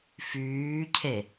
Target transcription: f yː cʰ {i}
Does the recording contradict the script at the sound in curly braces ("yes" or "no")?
yes